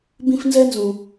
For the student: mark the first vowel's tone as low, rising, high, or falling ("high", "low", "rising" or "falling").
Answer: high